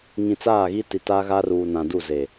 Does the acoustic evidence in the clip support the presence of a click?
no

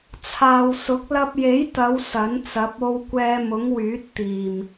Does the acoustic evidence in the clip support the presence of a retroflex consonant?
no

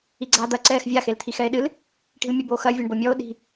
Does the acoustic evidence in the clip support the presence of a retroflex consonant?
yes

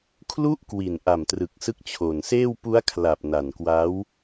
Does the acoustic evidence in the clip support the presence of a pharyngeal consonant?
no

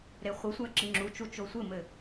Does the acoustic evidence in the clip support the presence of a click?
yes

